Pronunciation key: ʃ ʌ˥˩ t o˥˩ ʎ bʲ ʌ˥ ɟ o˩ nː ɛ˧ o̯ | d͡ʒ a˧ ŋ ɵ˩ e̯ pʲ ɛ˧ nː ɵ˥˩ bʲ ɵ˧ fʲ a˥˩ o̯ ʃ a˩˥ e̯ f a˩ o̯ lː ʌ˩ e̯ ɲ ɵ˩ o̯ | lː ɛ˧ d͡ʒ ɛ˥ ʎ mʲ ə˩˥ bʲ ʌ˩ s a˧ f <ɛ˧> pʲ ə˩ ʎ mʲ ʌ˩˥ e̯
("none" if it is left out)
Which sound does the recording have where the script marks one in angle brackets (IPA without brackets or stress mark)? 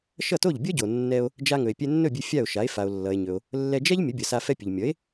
ɛ˧